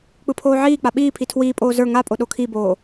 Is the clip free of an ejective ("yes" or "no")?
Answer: no